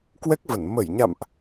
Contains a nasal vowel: no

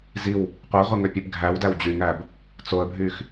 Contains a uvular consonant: yes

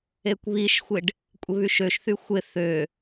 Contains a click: no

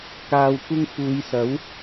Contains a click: no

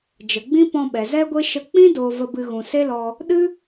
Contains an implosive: yes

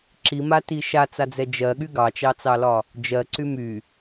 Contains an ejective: no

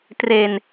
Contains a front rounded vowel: no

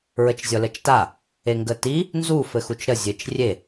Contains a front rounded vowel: no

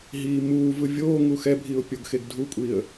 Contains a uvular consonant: no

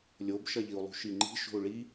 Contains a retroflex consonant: yes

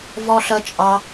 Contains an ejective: yes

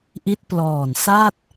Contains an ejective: no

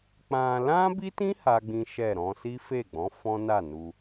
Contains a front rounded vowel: no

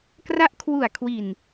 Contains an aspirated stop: yes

